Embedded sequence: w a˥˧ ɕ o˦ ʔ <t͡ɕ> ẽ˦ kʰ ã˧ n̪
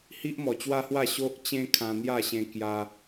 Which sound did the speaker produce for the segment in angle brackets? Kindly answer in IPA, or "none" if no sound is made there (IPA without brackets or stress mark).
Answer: t͡ɕ